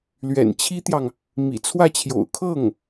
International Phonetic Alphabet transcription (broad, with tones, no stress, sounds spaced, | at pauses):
l ɥ ɛ̰˨˩ n t͡ɕʰ i˥ t̪ j ɑ˨ ŋ | m ḭ˨˩ t͡sʰ w ä˥˩ t͡ɕʰ j o̰˨˩ ʊ̯ kʰ ɤ˥˩ ŋ